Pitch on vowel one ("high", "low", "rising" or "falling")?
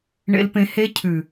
low